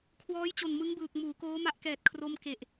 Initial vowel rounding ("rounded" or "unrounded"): rounded